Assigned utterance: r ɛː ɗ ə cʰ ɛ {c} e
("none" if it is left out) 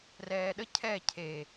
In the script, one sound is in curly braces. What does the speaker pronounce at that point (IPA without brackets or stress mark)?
cʰ